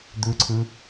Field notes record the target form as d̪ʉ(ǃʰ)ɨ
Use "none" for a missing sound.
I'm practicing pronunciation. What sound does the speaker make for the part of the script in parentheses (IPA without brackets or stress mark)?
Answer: ǀʰ